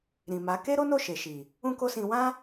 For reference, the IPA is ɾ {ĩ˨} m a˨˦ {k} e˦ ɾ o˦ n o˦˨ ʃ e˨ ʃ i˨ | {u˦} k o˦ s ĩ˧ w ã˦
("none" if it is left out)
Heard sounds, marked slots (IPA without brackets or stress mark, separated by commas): ĩ˨, k, ũ˦